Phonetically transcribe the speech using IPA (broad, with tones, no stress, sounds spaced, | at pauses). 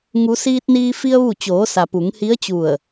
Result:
ŋ u˩˧ s iː˧ t̚ n iː˧ f i˧ ə̯ ʋ u˧˩ t͡ɕ oː˩˧ s a˩ p u˩˧ ŋ h i˧˥ ə̯ t͡ɕ u˧˩ ə̯